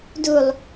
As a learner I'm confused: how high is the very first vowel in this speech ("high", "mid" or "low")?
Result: high